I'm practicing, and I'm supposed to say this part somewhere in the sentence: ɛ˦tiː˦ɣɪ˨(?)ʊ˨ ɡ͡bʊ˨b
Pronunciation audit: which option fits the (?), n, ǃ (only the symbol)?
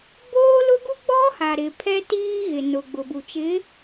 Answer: n